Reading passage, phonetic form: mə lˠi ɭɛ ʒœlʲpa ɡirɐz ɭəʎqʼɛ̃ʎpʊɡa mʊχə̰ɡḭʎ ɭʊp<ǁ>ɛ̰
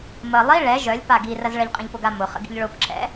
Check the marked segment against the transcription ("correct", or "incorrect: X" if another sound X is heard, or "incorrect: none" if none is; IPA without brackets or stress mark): correct